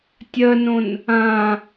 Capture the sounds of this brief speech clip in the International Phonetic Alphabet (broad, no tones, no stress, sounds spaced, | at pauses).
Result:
tʲ ɜ n õ n | ã